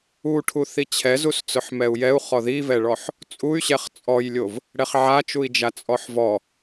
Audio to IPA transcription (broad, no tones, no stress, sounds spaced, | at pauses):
u ʈʰ u θ i t͡ɕʰ ɛ z u s t͡s ʊ ħ m ɛ u̯ j ɛ u̯ χ ɔ ð i v ɛ ɭ ɔ ħ | t͡sʼ u y̯ ɕ ɛ χ t͡sʼ ɔ j lʲ o v | ɽ ɛ χ ʕ a t͡ʃ u i̯ d͡ʒ a t͡sʼ ɔ ħ v ɔ